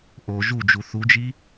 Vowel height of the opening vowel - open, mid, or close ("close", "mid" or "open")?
mid